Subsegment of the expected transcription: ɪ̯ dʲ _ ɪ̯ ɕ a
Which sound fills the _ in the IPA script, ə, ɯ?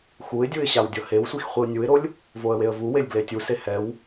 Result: ɯ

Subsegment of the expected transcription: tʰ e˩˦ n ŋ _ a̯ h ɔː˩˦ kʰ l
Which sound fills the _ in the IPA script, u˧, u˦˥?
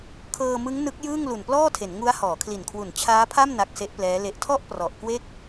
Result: u˦˥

